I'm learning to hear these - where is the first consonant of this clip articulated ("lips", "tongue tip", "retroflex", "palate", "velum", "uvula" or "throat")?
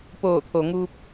lips